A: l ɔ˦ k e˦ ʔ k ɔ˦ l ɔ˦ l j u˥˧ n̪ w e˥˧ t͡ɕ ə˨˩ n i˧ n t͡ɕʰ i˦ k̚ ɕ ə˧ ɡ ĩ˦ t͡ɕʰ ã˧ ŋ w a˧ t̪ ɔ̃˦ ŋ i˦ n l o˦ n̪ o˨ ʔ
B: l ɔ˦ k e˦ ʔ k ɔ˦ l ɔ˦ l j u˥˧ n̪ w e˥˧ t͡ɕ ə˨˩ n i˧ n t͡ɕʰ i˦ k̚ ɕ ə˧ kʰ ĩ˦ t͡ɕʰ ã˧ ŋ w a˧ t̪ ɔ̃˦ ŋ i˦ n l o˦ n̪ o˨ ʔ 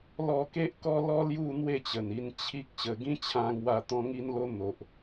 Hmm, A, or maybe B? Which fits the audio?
A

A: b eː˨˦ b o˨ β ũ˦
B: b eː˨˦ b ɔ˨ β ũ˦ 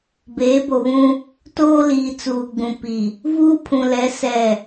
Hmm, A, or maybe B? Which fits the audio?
A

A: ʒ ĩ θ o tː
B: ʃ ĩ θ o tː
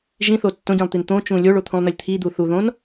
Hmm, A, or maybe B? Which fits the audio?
A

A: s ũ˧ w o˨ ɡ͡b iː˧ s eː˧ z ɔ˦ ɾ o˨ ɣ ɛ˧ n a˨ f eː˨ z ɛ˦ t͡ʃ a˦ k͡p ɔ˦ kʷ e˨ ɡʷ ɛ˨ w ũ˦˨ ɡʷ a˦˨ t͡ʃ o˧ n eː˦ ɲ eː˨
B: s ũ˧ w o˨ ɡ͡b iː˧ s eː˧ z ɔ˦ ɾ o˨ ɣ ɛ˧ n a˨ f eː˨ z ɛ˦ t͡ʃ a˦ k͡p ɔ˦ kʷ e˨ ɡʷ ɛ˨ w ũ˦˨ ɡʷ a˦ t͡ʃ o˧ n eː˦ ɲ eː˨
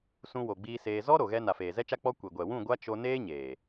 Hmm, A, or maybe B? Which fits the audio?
B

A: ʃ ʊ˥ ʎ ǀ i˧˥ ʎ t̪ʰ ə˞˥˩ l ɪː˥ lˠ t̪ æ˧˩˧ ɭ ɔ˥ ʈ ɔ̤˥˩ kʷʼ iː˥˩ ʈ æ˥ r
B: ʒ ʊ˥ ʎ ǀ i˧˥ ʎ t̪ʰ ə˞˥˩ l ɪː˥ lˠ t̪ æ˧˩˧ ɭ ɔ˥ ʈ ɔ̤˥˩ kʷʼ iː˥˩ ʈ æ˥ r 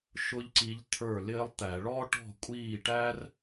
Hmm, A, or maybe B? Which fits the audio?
A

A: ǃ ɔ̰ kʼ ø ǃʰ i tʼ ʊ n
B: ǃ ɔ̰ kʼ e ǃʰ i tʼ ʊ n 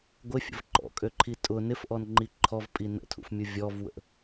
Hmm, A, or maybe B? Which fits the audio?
A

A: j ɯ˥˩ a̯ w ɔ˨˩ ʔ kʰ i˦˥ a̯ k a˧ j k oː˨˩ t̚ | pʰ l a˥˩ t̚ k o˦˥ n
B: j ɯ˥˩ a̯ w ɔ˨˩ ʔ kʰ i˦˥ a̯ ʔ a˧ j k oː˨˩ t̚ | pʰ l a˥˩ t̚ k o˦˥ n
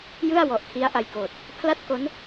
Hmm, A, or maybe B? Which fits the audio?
B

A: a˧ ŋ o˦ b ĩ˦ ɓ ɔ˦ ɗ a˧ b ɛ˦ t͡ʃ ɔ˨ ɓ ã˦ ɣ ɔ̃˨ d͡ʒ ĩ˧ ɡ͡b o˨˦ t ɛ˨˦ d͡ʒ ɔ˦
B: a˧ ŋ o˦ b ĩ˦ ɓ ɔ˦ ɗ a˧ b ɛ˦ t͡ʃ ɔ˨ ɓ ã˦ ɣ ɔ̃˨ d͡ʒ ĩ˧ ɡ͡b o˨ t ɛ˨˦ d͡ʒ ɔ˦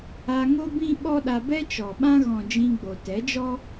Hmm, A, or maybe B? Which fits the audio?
B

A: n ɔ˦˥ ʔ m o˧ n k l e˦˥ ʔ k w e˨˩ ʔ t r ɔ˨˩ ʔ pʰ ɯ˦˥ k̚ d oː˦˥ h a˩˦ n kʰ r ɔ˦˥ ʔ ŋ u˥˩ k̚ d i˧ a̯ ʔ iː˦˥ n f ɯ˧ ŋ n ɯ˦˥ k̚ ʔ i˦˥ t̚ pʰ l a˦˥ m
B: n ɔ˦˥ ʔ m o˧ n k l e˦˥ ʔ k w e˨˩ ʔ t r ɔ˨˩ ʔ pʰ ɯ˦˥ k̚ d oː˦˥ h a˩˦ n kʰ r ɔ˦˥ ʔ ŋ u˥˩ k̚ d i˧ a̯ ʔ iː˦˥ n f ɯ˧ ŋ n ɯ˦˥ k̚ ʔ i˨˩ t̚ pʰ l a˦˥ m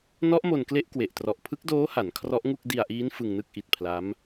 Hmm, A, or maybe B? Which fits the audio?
B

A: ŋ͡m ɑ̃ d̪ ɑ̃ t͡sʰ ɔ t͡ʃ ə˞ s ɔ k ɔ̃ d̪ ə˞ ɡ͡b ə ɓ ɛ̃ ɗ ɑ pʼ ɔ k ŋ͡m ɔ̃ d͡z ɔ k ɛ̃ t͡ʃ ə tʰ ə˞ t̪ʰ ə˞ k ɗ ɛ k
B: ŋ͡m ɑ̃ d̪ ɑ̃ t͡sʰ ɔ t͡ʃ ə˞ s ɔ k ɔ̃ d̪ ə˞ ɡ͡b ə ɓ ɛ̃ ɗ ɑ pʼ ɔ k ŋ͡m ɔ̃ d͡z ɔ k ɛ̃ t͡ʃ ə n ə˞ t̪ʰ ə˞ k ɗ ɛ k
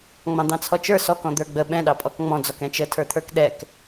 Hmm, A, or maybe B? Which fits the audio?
A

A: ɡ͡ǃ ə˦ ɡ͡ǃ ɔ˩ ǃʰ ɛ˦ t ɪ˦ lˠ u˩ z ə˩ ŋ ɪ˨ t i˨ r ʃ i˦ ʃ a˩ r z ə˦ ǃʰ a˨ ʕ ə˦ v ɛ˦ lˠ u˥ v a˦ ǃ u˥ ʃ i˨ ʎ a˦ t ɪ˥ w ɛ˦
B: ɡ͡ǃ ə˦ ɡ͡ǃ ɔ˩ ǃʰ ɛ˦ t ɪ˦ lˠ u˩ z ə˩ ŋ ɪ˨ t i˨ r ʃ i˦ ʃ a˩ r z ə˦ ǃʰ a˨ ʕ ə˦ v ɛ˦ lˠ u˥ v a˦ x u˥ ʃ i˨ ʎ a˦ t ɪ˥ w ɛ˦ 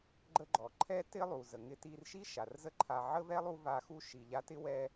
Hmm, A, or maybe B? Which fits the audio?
B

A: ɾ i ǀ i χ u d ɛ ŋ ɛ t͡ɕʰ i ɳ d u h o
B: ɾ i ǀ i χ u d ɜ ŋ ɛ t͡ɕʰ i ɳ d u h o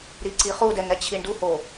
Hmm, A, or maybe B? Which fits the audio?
A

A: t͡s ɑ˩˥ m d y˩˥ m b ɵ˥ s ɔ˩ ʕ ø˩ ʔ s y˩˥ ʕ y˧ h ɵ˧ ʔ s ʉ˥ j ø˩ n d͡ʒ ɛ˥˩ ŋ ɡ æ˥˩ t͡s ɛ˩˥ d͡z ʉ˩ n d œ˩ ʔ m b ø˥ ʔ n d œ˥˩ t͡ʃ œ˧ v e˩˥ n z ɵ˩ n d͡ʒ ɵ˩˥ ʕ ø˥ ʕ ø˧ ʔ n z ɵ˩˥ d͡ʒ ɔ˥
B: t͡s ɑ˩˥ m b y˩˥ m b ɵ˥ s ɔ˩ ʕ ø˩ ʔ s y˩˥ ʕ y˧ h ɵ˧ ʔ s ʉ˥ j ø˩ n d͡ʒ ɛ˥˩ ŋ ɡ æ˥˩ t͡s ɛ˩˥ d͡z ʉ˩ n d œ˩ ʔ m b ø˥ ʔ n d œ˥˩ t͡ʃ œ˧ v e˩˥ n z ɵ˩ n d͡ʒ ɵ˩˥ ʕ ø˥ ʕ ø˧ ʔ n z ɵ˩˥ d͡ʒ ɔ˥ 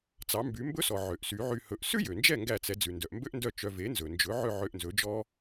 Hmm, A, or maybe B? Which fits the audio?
B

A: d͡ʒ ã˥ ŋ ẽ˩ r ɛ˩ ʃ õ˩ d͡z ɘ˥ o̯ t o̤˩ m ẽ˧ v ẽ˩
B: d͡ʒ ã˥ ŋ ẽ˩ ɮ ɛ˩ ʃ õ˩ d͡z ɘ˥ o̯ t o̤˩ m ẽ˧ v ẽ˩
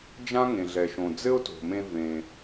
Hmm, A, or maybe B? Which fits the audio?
B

